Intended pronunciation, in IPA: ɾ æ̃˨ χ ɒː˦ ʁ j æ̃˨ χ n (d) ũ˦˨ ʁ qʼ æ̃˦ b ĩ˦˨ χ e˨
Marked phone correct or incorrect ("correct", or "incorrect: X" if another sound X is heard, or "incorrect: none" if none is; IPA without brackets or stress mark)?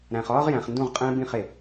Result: correct